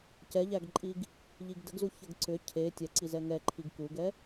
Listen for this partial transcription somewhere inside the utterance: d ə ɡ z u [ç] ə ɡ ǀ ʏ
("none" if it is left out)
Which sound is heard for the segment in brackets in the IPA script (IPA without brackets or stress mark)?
ç